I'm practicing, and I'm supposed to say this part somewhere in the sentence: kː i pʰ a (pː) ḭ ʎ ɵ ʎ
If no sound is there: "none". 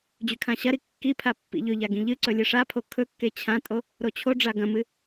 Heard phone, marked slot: pː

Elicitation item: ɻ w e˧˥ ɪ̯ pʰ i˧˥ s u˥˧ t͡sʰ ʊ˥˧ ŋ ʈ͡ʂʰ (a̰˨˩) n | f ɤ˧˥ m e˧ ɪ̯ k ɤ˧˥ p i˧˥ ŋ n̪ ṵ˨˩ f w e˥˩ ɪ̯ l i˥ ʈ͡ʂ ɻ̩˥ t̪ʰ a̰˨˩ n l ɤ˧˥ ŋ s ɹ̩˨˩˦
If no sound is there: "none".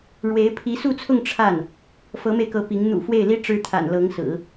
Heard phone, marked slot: a˥˩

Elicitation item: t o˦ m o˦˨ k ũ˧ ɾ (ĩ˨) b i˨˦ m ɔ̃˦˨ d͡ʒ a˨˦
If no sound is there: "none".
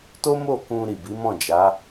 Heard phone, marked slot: i˨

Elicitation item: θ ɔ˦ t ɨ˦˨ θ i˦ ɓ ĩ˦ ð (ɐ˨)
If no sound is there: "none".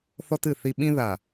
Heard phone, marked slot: a˨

